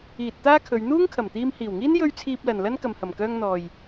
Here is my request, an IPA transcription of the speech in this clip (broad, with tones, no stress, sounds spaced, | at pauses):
iː˨ t̚ t̪ aː˥ kʰ ɵ˨˧ ɥ n̪ uː˥ ŋ kʰ ɐ˨˩ m t̪ iː˧ m h iː˨˩ w ŋ iː˥ n j ɵ˧ ɥ t͡sʰ iː˧ p̚ l ɐ˨ n l ɐ˥ n k ɐ˨ m h ɐ˨˩ m k œː˧ ŋ n̪ ɔː˨ j